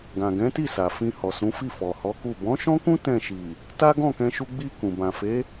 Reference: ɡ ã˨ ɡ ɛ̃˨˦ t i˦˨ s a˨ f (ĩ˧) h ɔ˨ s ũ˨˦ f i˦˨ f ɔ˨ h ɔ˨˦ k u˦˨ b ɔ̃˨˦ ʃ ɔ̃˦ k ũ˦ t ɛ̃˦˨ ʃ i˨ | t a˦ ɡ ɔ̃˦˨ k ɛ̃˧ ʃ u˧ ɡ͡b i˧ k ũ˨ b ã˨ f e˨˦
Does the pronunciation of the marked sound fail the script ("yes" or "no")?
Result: no